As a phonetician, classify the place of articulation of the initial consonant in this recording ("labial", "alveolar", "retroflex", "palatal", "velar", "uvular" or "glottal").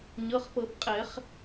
palatal